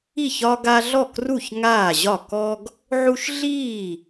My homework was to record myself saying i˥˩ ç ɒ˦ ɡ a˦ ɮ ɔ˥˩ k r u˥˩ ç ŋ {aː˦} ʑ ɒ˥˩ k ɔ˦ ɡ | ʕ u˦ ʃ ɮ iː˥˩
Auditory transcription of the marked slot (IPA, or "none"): aː˥˩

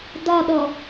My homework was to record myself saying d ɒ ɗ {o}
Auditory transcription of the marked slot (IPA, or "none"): ɔ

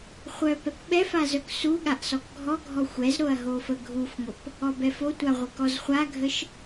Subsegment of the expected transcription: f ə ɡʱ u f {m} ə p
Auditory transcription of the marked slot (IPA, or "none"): ŋʷ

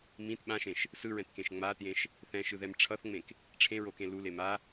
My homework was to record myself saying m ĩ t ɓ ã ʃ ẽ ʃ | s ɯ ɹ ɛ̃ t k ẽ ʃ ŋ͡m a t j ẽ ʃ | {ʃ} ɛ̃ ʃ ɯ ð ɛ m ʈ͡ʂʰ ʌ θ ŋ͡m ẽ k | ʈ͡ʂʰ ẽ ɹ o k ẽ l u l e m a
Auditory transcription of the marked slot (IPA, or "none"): θ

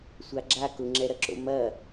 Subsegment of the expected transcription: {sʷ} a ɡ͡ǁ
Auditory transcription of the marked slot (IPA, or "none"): sʷ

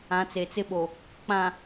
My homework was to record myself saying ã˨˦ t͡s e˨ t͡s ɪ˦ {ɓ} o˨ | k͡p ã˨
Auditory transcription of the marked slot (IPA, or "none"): ɓ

